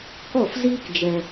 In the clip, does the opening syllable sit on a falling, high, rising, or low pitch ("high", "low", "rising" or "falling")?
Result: falling